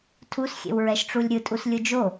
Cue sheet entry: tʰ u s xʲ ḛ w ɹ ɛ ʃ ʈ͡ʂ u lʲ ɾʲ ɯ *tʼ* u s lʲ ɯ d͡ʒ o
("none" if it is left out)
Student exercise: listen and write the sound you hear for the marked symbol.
tʼ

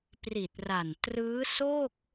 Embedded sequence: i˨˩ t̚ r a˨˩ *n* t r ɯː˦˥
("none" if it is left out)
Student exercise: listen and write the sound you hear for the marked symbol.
n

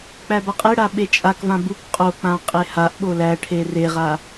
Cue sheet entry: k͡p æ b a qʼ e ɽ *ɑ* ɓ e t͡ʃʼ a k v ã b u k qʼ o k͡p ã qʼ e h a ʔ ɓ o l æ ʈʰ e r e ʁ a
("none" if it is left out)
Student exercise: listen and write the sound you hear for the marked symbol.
a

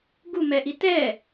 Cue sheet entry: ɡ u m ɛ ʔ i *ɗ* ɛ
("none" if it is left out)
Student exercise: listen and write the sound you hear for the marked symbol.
t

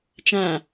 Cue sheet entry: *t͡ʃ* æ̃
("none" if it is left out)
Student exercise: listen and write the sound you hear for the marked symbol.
t͡ʃ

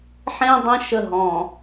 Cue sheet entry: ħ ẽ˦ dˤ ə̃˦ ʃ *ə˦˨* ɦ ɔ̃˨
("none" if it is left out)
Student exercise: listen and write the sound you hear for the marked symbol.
ə˦˨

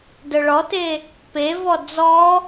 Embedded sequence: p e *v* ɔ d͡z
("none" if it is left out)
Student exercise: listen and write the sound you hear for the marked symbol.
v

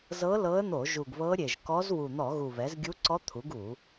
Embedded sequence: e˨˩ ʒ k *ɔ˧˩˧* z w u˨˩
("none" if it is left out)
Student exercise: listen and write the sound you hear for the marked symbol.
ɔ˧˥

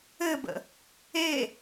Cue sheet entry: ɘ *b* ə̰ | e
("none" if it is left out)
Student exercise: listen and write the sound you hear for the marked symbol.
b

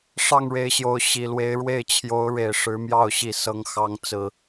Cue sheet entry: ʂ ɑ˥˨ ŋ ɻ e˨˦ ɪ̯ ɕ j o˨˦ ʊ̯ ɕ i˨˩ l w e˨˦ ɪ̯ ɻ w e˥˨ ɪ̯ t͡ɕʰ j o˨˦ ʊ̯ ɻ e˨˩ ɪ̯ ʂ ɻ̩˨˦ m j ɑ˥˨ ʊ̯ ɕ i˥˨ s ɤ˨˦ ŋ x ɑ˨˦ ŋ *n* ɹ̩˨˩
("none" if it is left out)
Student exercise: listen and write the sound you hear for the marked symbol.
t͡s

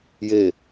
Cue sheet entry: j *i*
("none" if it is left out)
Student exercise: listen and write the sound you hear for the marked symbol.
e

